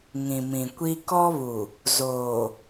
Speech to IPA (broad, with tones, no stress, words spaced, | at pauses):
ŋĩ˨mĩ˨kʷi˦ kɔ˦βu˨ | zoː˨